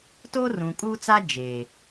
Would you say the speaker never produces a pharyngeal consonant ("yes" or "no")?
yes